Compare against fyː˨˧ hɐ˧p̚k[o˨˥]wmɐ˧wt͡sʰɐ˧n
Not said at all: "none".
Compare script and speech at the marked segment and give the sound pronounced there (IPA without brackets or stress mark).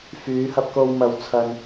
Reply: o˧